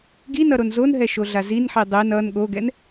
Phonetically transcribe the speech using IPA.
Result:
ɡ i n ʌ ɾ o n z o n ɦ ɛ ʃ o ɮ a z i n ħ i dˤ e n ʌ n ɠ o ɡ ɛ n

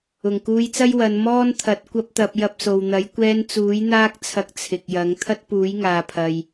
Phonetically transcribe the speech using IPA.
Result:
ʊ˨˩ ŋ k uː˧ j t͡s ɐ˥ j w ɐ˨˧ n m ɔː˥ n t̪ʰ ɐ˨˥ t̚ kʷ ɐ˥ p̚ t̪ ɐ˧ p̚ j ɐ˧ p̚ s o˨ w n̪ ɐ˨˥ j kʷ ɛː˧ n t͡s uː˨˥ j n̪ aː˥ k̚ t͡sʰ ɐ˧ k̚ t͡sʰ ɪ˨ k̚ j ɐ˨˥ ŋ t̪ʰ ɐ˥ t̚ p uː˨˥ j ŋ aː˨ pʰ ɐ˨ j

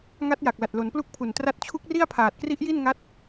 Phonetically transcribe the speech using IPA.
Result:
ŋ a˦˥ t̚ j a˨˩ k̚ l a˨˩ t̚ l o˩˦ n p l u˥˩ k̚ pʰ u˨˩ n t r a˦˥ t̚ t͡ɕʰ u˦˥ k̚ r i˥˩ a̯ pʰ aː˨˩ t̚ k r i˦˥ ʔ j i˥˩ n ŋ a˦˥ t̚

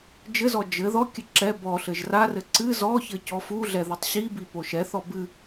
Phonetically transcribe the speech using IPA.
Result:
d͡ʒ ɘ z ɔ d͡ʒ ɘ ð ɔ kʲ ɘ ǁ ɛ b ɔ ɬ ɘ ʒ r a r ɘ ǀ ɨ z ɔ ç ɘ c ɔ f u ɮ ɛ ð ɨ tˤ ɕ i b i p o ʃ ɛ θ ɔ b ɨ

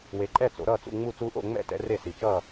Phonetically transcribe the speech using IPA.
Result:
w e˨˦ ǃʼ ɛ˥˨ t͡s o̰˨˦ ɾ ʌː˥˨ t͡s ṵ˥˨ ŋ͡m u˥˨ t͡s uː˥ ʔ o̰˥˨ ŋ͡m ɛ̰˥˨ t ɛ̰˨˦ r e˥˨ s i˨˩ t͡ʃ ʌː˥˨

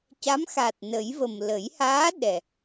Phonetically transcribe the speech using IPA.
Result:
c a˧˥ m x a˨˩ t̚ n ə˨˩˦ j v ə˨˩ m l ə˨˩˦ j h aː˧˥ ɗ ɛ˨˩

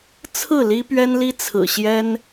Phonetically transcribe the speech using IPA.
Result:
t͡sʰ ɹ̩˥˨ l i˦ p ɥ ɛ˦ n l i˦ t͡sʰ ɹ̩˨˩ ɕ j ɛ˦ n

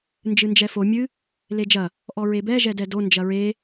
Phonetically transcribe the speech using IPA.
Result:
n d͡ʒ ɨ n d͡ʒ ɛ f o mʲ ɨ | l e d͡ʒ ɐ | ʔ ɔ ɹ e b ɛ ʒ ɛ d ɛ d o n d͡ʒ ɐ ɹ e

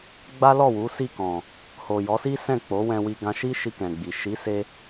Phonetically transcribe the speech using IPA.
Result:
ɡ͡b a˦ l ɔ˦˨ w u˨˦ s i˦˨ k ɔ̃˨ | h o˨ j ɔ˨˦ s i˦ s ɛ̃˦˨ k͡p o˨˦ w ɛ̃˧ w i˧ ɡ ã˧ ʃ i˦ ʃ i˧ k ɛ̃˨ ɡ͡b i˨ ʃ i˨˦ s e˧

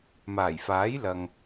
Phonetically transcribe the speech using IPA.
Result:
m aː˨˩ j f aː˨˥ j l ɐ˨ ŋ

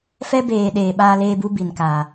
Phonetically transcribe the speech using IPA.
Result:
f ɛ˦ b eː˨ ɗ eː˨ ɓ aː˦ l eː˦ b u˦ b i˨ n k aː˨

